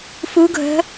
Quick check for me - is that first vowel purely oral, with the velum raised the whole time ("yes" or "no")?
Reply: yes